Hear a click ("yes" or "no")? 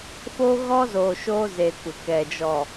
no